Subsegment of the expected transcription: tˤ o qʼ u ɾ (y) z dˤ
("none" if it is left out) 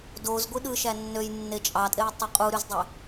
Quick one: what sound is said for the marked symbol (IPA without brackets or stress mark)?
y